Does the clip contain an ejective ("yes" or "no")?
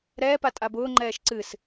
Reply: yes